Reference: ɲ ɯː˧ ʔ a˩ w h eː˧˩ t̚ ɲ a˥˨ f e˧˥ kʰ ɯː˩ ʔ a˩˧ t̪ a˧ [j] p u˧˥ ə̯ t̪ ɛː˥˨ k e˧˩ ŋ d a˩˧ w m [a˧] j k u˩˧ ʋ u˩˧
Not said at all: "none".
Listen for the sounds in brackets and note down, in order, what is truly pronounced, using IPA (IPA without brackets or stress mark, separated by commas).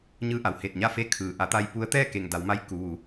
j, a˧